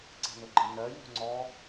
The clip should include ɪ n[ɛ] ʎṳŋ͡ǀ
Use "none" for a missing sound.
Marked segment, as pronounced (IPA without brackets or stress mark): ɜ